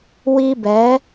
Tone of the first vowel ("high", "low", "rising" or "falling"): high